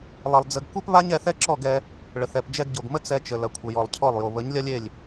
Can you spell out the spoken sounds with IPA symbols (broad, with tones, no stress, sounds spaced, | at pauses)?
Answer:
lˠ ɐ˨ lˠ d͡z ə˧ ɡ kʷ e˦ p β a˦ ɲ ɛ˧ θ ɛ˦ ǁ ɔ˦˨ ɡ ɛ˧ | ɭ ə˨ θ ɛ˨ p d͡ʒ ɛ˧ ɡ ɟ o˨ ɡ m ə˦ t͡s ɛ˧ t͡ʃ ə˨ l ɐ˨ kʷʰ ə˨ j ɔ˨ lˠ cʰ ɔ˦˨ lˠ j o˨ β ə˨˦ ɲ lʲ ɐ˦ lʲ e˦˨ lʲ